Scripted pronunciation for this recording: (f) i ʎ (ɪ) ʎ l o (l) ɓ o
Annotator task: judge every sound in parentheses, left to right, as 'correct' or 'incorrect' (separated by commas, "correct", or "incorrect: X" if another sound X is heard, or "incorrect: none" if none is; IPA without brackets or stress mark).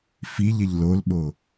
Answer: correct, correct, correct